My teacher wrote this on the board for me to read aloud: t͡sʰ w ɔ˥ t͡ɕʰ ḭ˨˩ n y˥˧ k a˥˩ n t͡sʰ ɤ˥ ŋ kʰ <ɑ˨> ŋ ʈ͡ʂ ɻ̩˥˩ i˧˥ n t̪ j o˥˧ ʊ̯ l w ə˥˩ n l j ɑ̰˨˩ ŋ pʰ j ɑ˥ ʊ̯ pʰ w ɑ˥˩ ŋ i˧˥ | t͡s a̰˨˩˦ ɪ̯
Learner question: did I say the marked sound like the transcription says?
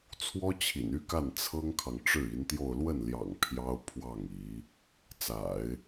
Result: yes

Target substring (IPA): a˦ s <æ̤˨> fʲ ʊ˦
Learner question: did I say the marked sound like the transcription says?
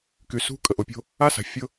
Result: no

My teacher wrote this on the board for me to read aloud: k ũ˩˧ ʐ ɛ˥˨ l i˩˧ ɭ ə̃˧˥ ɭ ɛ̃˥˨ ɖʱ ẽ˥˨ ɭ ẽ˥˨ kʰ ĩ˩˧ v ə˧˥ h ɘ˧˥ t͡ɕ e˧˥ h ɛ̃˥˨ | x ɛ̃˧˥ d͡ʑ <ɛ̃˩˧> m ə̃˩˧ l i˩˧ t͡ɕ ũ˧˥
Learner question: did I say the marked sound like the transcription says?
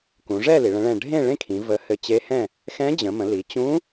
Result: no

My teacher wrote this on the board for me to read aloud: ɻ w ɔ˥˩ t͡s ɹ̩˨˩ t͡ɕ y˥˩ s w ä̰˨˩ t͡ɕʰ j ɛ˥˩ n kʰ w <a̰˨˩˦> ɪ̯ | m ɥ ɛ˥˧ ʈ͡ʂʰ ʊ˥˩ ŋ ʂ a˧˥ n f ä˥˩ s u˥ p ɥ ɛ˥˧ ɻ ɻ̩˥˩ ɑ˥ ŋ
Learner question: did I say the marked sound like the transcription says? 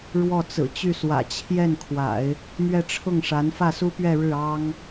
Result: yes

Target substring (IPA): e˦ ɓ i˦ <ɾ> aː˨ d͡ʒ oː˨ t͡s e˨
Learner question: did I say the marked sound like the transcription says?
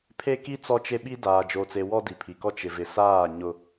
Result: no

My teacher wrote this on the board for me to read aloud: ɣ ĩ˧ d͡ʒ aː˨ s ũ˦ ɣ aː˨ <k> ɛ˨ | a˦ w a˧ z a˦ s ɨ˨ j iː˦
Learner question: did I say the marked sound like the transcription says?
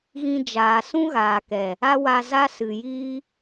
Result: yes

